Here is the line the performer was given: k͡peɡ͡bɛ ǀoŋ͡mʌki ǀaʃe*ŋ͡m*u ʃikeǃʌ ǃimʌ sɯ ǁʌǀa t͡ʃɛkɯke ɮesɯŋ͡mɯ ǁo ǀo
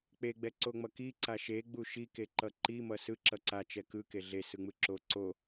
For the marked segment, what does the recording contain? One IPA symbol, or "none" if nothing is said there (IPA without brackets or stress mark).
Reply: ɡ͡b